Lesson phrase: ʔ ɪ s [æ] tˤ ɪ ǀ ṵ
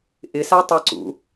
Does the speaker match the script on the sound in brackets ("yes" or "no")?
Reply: no